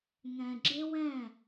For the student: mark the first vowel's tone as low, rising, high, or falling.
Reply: low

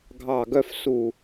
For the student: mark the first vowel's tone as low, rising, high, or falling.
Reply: falling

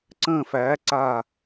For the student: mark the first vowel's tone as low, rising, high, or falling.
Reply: falling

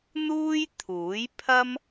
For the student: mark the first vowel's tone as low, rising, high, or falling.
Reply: high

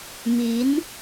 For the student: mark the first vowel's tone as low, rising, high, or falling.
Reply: rising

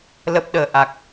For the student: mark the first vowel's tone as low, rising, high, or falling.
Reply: low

